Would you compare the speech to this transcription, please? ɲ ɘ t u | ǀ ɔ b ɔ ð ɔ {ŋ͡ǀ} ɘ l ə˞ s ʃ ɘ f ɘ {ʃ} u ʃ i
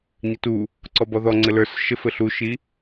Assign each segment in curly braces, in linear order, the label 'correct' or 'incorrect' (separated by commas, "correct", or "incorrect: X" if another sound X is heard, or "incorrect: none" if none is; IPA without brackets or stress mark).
correct, incorrect: ɬ